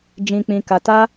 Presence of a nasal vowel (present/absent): present